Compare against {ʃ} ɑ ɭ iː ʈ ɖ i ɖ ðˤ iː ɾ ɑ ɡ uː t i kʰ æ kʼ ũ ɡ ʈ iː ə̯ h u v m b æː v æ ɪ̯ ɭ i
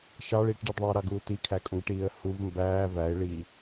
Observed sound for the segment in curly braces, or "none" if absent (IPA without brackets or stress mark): ʃ